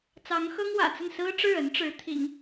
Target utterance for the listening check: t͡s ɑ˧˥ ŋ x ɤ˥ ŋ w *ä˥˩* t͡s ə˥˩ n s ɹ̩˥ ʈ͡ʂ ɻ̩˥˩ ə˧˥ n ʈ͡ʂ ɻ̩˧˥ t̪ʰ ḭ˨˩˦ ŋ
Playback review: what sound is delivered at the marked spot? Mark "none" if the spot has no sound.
ä̰˨˩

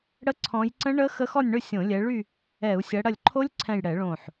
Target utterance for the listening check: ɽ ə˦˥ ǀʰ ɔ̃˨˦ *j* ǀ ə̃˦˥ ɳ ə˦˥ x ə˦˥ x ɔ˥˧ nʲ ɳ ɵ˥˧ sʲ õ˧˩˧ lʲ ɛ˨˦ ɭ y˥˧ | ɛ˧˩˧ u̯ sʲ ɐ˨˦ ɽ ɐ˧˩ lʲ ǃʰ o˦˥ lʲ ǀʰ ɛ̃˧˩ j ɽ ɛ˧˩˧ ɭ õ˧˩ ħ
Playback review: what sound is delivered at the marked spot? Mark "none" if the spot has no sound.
j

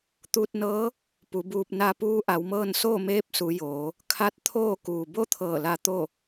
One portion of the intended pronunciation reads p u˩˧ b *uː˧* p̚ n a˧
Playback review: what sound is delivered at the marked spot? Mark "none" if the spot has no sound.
uː˧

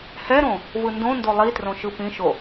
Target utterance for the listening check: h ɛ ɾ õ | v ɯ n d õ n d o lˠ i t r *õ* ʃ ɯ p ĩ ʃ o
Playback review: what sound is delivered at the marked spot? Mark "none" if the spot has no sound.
õ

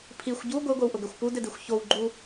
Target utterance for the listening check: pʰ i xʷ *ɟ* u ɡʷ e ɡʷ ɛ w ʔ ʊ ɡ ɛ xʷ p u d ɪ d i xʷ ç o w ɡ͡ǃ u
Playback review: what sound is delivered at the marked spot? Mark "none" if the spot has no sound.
ɟ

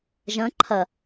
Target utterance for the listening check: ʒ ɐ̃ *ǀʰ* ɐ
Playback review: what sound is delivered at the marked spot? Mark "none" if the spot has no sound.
ǃʰ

